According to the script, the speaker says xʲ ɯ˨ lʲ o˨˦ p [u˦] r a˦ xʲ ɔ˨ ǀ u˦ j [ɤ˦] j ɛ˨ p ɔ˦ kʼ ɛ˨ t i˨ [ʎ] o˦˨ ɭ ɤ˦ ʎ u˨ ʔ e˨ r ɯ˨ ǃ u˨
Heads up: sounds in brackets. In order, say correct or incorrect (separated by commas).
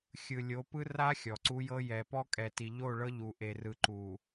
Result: incorrect, correct, correct